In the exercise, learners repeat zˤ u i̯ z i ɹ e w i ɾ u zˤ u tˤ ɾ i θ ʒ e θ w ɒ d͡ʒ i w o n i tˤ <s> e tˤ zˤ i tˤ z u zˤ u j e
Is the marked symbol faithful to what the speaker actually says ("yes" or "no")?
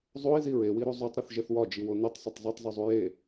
no